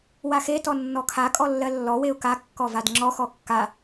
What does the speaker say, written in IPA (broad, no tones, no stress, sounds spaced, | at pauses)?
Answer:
w a x e t ɔ nː ɔ kʰ a kʼ ɔ lː ɜ lː ɔ w e ʊ̯ k a kː ɔ v a d ŋ͡ǁ ɔ x ɔ kː a